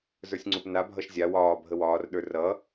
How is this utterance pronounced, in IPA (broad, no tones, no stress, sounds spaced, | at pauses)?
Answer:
z ə˞ sʲ ŋ͡ǀ u p n a bʱ ʌ ʃ zʲ a w ɒː bʱ ə w ɒː r ɗ ə˞ r ʌ